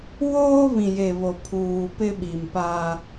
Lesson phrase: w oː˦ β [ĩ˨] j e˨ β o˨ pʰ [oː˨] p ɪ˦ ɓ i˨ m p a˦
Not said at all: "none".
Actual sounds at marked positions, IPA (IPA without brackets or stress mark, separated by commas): ĩ˨, uː˨